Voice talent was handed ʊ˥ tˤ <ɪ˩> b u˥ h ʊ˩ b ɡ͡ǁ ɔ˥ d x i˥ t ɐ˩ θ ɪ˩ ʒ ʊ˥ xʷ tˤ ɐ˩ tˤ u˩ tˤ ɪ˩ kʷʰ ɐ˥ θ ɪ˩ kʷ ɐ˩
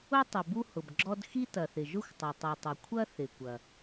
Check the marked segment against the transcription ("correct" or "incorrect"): correct